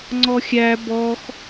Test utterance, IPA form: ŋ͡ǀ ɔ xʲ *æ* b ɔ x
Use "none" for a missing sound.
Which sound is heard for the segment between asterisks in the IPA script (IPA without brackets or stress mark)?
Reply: æ